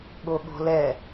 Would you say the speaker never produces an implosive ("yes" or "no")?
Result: no